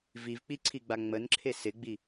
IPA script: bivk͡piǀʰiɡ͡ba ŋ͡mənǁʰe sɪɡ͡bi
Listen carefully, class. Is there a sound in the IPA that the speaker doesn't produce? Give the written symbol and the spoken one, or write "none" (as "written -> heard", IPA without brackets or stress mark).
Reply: b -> v